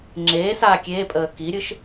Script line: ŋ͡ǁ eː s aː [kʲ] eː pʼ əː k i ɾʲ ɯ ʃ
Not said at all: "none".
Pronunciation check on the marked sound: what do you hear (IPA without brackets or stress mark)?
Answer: kʲ